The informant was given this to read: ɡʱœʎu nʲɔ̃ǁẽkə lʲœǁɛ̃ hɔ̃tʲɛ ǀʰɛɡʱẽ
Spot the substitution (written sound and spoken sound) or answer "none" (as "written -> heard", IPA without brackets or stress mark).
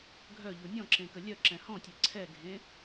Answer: none